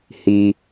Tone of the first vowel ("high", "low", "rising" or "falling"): low